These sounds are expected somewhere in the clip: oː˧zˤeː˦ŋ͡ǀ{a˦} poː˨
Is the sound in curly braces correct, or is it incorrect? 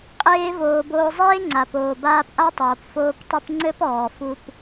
incorrect